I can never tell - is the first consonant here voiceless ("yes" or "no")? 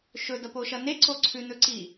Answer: yes